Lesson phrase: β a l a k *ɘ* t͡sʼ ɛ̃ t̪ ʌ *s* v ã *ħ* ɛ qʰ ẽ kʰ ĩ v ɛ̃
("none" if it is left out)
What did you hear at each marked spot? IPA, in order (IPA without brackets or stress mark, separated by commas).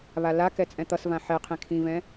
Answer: ɛ, s, ħ